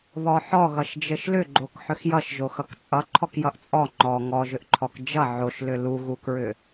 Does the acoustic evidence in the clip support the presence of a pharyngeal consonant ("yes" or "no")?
yes